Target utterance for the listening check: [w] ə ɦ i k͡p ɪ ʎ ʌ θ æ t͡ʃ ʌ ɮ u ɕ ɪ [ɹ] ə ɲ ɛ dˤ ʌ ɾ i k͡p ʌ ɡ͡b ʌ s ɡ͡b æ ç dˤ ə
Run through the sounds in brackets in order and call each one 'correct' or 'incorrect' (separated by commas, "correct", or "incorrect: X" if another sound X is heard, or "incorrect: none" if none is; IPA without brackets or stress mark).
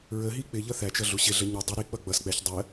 incorrect: ɹ, incorrect: ɮ